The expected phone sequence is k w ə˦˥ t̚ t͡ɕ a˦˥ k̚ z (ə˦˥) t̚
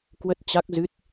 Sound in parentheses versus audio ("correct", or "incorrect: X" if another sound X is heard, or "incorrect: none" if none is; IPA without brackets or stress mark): incorrect: ɨ˦˥